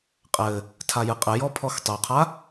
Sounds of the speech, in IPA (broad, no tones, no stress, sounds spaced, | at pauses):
qʼ ɘ | tʰ a j ɨ qʼ ɘ j ɔ pʰ ɔ x tˤ o qʰ a